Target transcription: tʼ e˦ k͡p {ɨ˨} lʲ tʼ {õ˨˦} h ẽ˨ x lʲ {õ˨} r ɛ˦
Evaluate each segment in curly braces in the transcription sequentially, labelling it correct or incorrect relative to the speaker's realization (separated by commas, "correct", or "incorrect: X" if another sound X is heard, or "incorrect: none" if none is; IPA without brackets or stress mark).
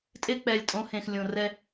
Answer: incorrect: ɛ˨, correct, correct